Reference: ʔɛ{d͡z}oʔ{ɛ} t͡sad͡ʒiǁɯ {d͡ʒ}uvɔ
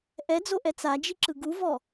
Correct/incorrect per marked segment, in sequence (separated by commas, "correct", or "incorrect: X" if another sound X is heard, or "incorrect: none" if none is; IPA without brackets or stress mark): correct, correct, incorrect: ɡ